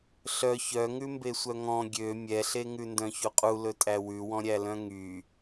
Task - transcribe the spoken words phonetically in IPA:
ɬ œ ç œ ŋ ʉ m b e sʷ œ ŋ ɔ̃ ɡʲ ø mʲ ɛ ɬ e ŋ ʉ n d œ̃ ç u qʼ u l ɵ tʼ æ w ʉ w ɔ̃ ɾʲ æ l œ̃ ŋ y

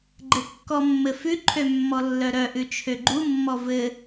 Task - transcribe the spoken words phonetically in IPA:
ɡ͡ǃ ɘ kː ɔ mː ɘ f ʉ ǃʰ ø mː ɔ lː œ ɾ œ ʔ ʉ t͡ʃʰ ø ɡ͡ǃ u mː ɔ v ɘ

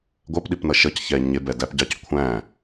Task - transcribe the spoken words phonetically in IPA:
ɡʷ ɜ p ɗ i p n ʌ ʃ ʌ c ç ɛ ɲ ɪ b ɛ d æ p ɟ ɑ c kʷʰ æ̃

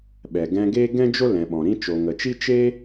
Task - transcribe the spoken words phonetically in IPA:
ɓ ɛ˨ ɡ ɛ̃˧ ɡ eː˦ ɡ ɛ̃˦ d͡ʒ o˦ l ɛ̃˨ ɓ ɔ̃˨ ɾ ĩ˦ t͡ʃ o˨ ŋ ə˨ t͡ʃ i˦ t͡ʃ e˦

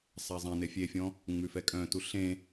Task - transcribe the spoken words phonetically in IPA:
sˤ æ zˤ ẽ n e fʲ e fʲ ɔ̃ | ŋ͡m ʉ f ɛ kʼ œ̃ t u ɬ ẽ

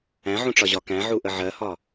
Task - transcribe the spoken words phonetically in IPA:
æ̃ ʕ ũ ʈ͡ʂ ɒ ʑ ɒ k æ̃ ʕ u ʔ ə ʕ ɜ h ɒ

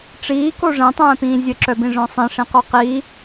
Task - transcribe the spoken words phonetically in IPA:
ʈ͡ʂ iː k o ʐ ɛ̃ tˤ ɛ̃ː p ĩː zʲ ə ǁ œ b ĩ ʐ œ̃ sˤ ĩ ʂ ĩ q o q iː

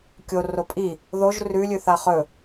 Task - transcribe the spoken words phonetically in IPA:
kʲ o r o pʼ i | ð o ʒ r ʉ lʲ ʉ θ a χ ɵ

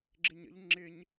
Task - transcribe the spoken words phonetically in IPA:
ɡ͡ǁ ɪ ɲ ə̰ ʎ ŋ͡ǁ ɪ ɲ

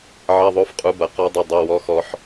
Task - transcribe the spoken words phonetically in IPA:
ʕ ɐ˧˥˧ ðˤ o˧˥˧ f qʼ u˨˥ b ɐ˩˧˩ q ɔ˦˥ dˤ ɘ˧˥˧ dˤ ɐ˧˥˧ w ɔ˦˥ x ɔ˦˥ ħ

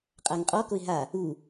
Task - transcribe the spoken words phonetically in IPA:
qʼ a ŋ qʼ ɔ k o ɪ̯ ɦ a | u

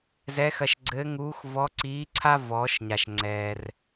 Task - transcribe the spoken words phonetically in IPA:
z ɛ˧˥ x ɐ˧ ʃ ɡ͡ǀ ɘː˧˥ ŋ uː˧˥ x v ɔ˧˥ ǀ iː˧˥ ǀʰ a˥ v ɔː˩˧ ʃ ɲ a˩ ʃ ŋ͡ǀ ɛː˩ r

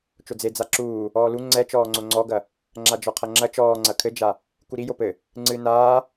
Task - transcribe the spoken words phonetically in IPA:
t͡ʃ o d͡z e d͡z a ǁ uː | ɔː l u ŋ͡ǀ ɛ t͡ʃ ɔː ŋ͡ǀ o ŋ͡ǀ ɔ ɡ ɐ | ŋ͡ǁ a d͡ʒ ɔ qʰ ɐ ŋ͡ǁ ɐ t͡ʃ ɔː ŋ͡ǀ ɐ kʰ ɘ d͡ʒ a | k u ɾ i j o p ɘ | ŋ͡ǀ ɨ n aː

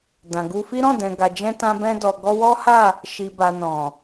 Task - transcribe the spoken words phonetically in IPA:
d ã˨ ɡ u˧ f i˦ ɾ ɔ̃˦˨ d ɛ̃˨ ɡ a˨ d͡ʒ ɛ̃˧ t ã˧ b ɛ̃˧ d ɔ˨ ɡ ɔ˧ w ɔ˦ h a˦˨ | ʃ i˨ b a˨ n ɔ̃˨

